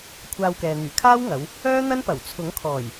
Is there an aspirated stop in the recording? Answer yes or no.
yes